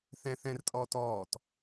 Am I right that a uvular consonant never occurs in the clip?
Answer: yes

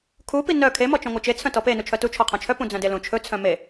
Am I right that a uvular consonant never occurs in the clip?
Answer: no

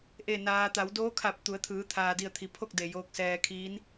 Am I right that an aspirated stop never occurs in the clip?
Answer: no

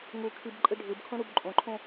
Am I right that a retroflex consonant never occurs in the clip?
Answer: no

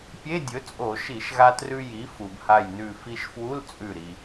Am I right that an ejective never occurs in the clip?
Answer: no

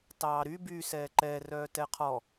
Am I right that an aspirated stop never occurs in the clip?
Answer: no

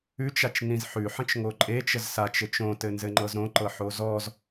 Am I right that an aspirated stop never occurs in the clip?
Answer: yes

